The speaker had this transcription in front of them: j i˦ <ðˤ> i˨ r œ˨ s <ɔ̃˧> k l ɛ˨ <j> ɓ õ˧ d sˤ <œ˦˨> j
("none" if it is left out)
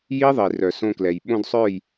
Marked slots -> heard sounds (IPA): ðˤ, õ˧, j, œ˦˨

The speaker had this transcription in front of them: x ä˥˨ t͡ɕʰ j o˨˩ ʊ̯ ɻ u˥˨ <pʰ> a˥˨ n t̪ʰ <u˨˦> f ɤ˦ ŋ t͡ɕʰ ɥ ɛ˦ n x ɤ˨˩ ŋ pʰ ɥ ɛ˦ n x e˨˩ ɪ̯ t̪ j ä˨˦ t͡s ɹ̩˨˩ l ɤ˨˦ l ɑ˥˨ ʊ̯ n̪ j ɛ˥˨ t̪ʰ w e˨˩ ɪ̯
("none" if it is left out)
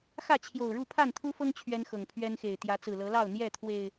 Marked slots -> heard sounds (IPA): pʰ, u˦

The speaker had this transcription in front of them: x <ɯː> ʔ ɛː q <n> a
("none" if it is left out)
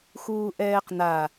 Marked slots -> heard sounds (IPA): uː, n

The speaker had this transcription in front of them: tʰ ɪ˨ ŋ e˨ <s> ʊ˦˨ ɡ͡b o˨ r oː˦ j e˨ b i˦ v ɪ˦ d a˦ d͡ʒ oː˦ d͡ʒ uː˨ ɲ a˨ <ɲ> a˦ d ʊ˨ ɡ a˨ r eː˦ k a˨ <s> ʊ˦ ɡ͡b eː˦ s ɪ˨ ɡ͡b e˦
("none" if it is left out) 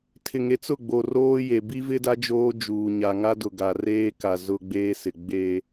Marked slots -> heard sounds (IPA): t͡s, ŋ, z

